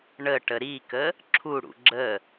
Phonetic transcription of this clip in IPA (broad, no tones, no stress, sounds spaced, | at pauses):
ɳ ə ʈ ə ɾ i k ə | ǁʰ u ɽ ṵ ɡ͡ǁ ə